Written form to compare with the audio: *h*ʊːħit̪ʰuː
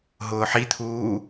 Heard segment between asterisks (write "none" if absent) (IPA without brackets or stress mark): ɦ